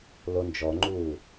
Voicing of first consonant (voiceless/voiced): voiced